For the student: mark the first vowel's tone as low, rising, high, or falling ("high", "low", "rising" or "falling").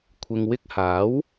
low